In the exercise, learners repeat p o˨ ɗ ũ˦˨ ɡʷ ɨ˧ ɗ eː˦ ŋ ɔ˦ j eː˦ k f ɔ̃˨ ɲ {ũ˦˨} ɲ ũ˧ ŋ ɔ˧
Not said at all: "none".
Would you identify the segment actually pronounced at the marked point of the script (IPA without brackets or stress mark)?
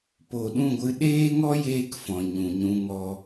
ũ˨